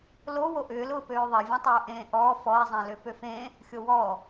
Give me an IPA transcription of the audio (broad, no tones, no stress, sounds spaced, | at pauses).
l o w o ʔ ʏː l ʊː p øː ðˤ e vʲ ẽ tˤ ʊː ʔ ẽː ʔ ɔː f ɔ e̯ zˤ ẽ l ø p ø f ẽ | xʲ o w ɔ